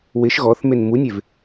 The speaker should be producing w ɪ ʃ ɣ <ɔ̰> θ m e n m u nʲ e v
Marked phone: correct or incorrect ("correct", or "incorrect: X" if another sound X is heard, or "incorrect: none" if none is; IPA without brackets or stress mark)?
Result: incorrect: ɔ